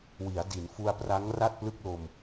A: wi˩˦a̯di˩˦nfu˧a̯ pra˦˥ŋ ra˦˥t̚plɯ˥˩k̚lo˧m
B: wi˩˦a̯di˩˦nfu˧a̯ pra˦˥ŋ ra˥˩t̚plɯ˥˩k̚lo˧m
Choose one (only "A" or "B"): B